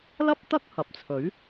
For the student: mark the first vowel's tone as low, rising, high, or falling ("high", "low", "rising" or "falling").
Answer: high